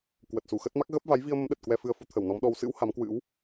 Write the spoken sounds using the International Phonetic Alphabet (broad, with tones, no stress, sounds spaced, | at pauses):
k w ə˨˩ t̚ s u˧˩ x ə˦˥ t̚ m a˦˥ k̚ ɣ ə˦˥ p̚ v a˨˦ j v i˧ ə̯ m ə˨˦ m ɗ ə˨˩ t̚ k w ɛ˧ f ɨ˧ ə̯ f u˨˦ t̪ʰ ə˧˩ w n ɔ˨˦ m ɗ ɔ˧ w s ɨ̰˧˥ w h a˨˦ m k w ɨ̰˧˥ w